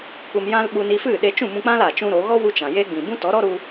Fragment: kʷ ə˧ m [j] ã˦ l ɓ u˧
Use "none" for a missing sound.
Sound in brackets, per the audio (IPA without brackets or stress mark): j